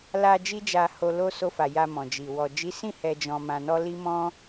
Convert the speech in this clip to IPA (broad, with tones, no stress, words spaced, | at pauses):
la˧ d͡ʒi˦d͡ʒa˧ ho˧lo˦ so˧fa˨ ja˧ mɔ̃˨d͡ʒi˨ wɔ˨d͡ʒi˨˦sĩ˦˨ hɛ˧d͡ʒɔ̃˧mã˧nɔ˦ li˦mɔ̃˦